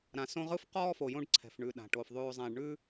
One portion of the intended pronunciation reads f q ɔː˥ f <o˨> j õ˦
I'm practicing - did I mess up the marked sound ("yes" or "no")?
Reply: no